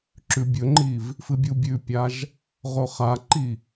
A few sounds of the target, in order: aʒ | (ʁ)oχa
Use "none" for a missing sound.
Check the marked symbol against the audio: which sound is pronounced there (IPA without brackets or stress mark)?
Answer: ʁ